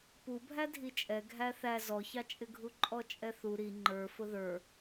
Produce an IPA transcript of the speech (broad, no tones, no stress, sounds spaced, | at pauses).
p u bʱ æ dʱ i t͡ʃʼ ɛ ɡʱ æ θ æ z ɔ ç ɑ t͡ʃʼ ɪ ɡʱ u ǃʼ ɔ t͡ʃʼ ɛ θ u ɾ i ŋ͡ǃ ə˞ f ʊ ð ə˞